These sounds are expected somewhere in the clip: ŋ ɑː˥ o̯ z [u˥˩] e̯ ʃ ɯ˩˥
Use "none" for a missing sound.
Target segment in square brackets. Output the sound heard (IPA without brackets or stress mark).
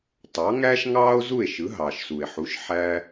u˥˩